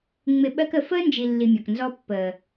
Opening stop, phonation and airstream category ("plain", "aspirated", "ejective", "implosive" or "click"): implosive